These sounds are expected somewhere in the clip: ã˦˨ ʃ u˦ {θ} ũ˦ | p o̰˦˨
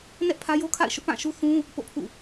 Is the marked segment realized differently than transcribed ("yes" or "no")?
no